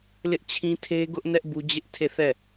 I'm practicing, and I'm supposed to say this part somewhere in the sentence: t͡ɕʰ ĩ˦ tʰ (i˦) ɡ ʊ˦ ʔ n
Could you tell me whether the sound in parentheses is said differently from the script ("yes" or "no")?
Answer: yes